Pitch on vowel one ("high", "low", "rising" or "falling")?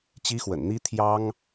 high